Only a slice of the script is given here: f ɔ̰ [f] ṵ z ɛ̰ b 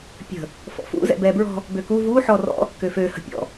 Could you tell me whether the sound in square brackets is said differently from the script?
no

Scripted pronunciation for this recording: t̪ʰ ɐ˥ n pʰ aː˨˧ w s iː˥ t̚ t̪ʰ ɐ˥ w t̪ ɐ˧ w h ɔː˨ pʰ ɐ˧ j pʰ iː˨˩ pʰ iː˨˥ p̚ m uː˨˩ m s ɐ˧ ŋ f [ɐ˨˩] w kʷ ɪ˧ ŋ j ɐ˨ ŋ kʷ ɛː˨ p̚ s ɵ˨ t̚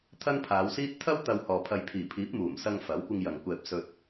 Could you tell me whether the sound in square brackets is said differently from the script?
yes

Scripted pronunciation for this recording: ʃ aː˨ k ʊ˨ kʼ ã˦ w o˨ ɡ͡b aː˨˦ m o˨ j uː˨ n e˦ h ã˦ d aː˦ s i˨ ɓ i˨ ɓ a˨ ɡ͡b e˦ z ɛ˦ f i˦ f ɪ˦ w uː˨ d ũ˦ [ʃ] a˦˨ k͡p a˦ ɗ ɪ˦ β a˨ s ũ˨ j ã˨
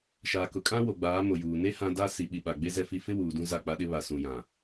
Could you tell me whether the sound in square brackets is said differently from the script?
yes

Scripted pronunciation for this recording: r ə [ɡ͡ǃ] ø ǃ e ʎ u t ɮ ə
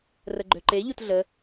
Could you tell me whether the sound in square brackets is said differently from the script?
no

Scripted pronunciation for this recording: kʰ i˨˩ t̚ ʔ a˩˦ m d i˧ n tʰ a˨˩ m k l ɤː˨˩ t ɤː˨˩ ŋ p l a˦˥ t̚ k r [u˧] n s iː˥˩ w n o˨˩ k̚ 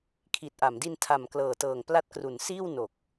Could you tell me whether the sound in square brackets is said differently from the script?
yes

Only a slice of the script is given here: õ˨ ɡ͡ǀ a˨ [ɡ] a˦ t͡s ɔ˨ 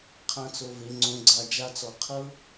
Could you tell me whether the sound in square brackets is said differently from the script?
yes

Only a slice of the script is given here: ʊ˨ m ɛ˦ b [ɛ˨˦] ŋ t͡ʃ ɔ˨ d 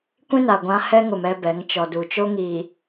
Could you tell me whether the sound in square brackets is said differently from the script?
no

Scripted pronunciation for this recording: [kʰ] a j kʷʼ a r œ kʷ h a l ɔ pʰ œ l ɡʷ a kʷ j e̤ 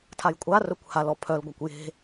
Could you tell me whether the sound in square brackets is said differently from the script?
yes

